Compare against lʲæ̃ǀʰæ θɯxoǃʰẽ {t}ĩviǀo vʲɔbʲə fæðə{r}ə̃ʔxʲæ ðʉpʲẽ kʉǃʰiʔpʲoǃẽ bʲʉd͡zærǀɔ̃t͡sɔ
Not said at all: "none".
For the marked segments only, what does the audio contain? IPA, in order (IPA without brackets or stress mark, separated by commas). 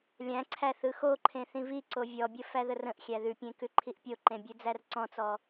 θ, r